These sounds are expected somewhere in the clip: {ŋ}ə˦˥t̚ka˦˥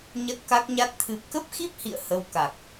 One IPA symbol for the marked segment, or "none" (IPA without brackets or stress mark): ɲ